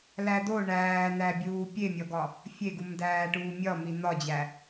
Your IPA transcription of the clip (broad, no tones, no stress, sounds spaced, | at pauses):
l æ d o ɳ æː n̪ æ bʲ uː pʲ e mʲ ɒ ɡ ɒ | fʲ e ɡ u m d æː ʈ uː mʲ ɒ m i n̪ ɒ d͡ʑ æ